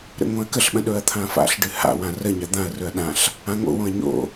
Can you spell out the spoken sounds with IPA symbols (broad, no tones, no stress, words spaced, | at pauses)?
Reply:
ɾə̰ŋõɐ̯kəɬɓə̃ ɗɵɐ̯t̪ʰãfa̰ɬɖɨ ha̰wã rəɲa d̪ãɐ̯rɵɐ̯ ɗãɬ | ãŋo̰wõɐ̯ ɲo̰